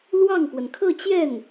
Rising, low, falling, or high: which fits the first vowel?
falling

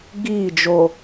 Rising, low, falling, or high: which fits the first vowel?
falling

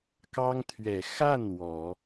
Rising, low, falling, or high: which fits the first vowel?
high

